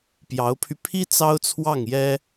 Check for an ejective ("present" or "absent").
absent